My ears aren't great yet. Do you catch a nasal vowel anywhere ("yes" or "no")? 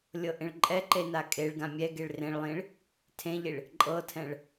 yes